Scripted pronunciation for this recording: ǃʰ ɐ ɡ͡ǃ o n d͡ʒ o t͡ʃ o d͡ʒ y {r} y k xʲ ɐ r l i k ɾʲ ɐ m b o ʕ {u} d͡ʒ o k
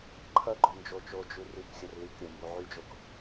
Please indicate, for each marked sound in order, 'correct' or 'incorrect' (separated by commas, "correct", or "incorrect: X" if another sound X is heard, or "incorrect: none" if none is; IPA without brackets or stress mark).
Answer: correct, incorrect: y